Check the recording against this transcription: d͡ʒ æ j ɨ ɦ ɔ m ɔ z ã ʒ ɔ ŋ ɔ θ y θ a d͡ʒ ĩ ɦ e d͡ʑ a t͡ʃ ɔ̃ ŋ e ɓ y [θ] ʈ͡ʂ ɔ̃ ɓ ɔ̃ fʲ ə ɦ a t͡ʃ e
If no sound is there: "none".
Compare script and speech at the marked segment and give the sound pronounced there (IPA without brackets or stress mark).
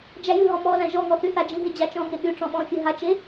none